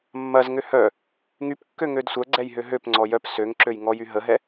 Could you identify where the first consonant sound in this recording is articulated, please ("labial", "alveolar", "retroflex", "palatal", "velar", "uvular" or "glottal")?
labial